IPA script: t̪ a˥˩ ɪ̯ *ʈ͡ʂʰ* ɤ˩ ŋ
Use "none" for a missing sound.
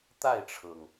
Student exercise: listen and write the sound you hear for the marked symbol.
ʈ͡ʂʰ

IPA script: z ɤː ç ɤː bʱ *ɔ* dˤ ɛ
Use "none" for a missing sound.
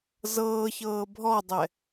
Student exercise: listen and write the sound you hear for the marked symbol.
ɔ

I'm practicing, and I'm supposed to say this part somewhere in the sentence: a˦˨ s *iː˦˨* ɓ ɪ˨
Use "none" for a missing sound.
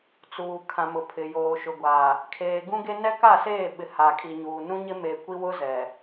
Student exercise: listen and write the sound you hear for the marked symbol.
eː˦˨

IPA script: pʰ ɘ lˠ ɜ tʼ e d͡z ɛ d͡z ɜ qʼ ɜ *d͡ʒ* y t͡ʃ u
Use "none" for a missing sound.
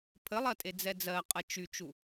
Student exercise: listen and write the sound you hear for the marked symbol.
t͡ʃ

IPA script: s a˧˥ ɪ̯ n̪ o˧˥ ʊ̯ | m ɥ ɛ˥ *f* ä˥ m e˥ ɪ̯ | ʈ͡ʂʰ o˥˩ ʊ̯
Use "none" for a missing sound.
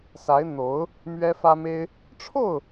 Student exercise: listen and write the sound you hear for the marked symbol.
f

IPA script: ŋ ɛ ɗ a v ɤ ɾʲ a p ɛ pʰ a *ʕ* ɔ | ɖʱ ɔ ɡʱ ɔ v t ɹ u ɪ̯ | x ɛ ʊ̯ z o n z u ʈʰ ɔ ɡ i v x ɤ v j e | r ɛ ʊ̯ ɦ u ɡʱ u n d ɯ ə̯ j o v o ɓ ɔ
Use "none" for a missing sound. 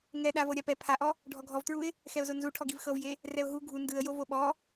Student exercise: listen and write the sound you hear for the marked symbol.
ʔ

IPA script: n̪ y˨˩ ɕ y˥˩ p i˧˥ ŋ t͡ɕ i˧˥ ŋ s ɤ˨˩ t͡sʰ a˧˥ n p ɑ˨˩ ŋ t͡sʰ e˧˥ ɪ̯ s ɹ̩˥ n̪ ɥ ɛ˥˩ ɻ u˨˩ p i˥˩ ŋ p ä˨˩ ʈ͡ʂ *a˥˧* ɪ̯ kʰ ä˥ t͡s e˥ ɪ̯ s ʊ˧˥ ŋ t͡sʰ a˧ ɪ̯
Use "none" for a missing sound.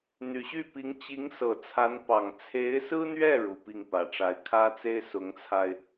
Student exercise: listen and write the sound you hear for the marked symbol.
a˧˥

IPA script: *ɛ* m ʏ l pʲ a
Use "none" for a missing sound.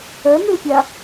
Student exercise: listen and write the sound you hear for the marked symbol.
œ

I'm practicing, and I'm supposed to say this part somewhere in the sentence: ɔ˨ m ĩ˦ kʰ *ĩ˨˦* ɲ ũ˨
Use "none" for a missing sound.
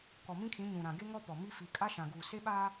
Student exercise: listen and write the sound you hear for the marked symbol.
ĩ˨˦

